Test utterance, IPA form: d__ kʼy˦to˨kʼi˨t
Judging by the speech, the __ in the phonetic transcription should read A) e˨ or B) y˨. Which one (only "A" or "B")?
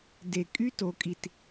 A